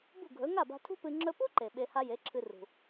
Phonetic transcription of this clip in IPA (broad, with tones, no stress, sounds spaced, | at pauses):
b ṳ˥˩ ɡʱ ɵ˩˥ ŋ a˥˩ b a̤˧ tʰ ṳ˥ p ɨ˧ ŋ͡ǁ ɵ˧ p u˥ ǃ e˩ ɓ e˧ h a˥ j e˩˥ ǁʰ ɨ˧ r ṳ˩